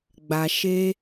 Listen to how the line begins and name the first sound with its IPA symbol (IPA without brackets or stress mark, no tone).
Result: ɡ͡b